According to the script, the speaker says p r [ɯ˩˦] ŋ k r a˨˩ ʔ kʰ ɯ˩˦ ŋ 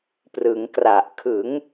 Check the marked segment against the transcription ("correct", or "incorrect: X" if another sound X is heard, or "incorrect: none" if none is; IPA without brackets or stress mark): correct